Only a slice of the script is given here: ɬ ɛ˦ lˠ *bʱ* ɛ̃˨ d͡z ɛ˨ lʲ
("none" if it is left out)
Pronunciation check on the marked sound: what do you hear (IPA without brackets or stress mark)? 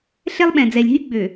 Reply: ɓ